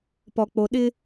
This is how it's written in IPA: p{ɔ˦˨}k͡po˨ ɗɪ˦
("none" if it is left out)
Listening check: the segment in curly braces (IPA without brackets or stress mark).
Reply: ɔ˨